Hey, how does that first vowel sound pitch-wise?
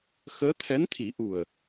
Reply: rising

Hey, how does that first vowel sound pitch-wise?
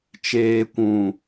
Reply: low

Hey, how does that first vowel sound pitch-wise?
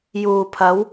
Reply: low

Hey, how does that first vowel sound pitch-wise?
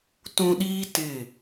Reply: low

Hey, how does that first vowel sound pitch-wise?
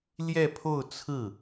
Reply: falling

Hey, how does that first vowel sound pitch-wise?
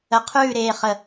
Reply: low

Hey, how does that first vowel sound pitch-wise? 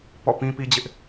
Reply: falling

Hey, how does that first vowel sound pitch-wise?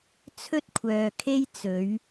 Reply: high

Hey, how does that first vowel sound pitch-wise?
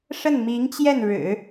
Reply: falling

